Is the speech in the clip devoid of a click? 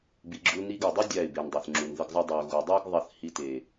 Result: no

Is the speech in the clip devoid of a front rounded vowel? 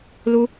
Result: yes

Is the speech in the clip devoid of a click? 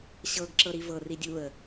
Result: no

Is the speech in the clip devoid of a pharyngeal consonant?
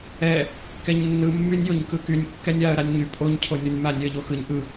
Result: yes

